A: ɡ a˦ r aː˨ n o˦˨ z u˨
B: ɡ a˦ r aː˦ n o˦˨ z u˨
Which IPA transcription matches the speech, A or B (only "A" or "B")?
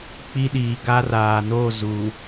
A